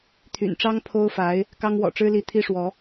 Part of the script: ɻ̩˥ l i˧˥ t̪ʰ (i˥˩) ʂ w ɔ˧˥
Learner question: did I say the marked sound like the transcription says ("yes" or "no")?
no